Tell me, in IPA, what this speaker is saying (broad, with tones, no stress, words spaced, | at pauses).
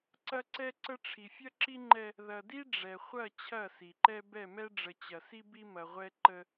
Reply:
ǀɐ˦ǀɛ˦ǀə˦ ʈ͡ʂʰi˨fʲɐ˦ǁi˦ŋ͡ǃɛ˦ | ðɐ˨di˦ ɖ͡ʐɛ˨χʷɐ˦˨ t͡ɕʰɐ˦˨si˨ǃɛ˦ bɛ˦˨mɛ˦ɖ͡ʐə˨ t͡ɕɐ˨si˦ bi˦mɐ˨ʁʷɛ˦ ǃə˦